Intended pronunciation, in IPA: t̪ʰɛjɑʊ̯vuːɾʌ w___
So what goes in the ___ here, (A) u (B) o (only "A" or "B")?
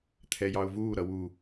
A